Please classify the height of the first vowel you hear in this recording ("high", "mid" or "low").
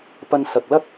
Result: low